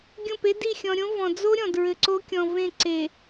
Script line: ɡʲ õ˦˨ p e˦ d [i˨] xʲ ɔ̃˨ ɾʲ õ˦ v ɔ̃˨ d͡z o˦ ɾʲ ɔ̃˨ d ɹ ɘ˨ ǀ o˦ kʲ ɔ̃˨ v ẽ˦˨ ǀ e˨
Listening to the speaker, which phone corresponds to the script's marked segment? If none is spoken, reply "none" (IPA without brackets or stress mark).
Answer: i˦˨